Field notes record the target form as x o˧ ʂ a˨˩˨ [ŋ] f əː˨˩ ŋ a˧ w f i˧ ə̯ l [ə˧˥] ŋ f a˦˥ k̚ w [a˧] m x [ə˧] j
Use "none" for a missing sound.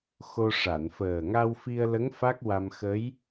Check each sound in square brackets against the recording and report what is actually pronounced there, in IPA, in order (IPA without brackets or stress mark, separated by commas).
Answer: n, ə˧˥, a˧, ə˧˥